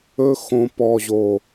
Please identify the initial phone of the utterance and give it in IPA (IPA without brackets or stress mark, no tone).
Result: ɵ